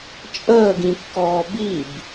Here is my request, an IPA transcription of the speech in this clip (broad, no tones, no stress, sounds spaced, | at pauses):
t͡ʃʼ əː ɡ ĩ kː ɔː b i b